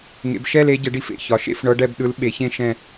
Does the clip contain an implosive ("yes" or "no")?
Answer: yes